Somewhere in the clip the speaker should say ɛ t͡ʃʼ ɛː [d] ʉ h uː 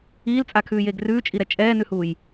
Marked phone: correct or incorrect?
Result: incorrect